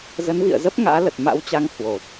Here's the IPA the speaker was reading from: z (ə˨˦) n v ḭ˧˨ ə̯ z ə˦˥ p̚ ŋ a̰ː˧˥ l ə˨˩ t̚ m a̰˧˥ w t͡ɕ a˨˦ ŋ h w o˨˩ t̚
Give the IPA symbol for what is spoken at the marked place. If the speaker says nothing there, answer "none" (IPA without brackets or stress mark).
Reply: ə˨˦